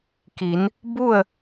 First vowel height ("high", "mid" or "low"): high